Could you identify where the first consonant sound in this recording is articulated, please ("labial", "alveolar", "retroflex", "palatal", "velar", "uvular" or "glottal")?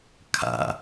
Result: velar